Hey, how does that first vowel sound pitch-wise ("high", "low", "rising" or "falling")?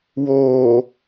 low